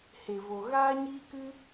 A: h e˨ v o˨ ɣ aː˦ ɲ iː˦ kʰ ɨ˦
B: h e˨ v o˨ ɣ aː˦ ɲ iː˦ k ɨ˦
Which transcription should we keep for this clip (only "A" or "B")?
B